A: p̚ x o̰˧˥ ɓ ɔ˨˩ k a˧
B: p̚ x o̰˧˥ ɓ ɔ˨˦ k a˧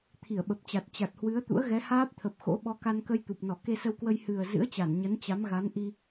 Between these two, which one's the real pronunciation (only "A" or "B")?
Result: B